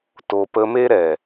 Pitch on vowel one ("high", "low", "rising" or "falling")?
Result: low